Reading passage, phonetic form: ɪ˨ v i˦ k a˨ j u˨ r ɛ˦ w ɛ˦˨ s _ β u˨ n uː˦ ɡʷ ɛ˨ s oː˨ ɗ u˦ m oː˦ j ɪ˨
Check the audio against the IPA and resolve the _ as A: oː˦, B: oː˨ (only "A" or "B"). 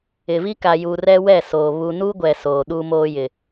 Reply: B